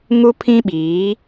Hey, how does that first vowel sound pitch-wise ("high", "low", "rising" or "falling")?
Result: high